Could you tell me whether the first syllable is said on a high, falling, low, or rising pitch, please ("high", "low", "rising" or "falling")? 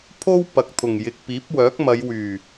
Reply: high